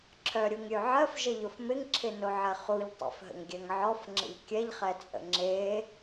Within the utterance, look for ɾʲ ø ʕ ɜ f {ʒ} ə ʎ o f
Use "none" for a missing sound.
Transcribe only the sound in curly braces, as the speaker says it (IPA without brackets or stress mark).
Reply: ʒ